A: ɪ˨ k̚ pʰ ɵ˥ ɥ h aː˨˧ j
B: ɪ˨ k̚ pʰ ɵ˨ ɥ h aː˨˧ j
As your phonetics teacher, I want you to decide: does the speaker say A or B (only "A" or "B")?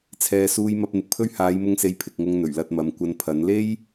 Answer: A